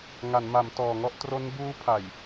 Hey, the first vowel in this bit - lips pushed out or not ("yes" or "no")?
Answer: no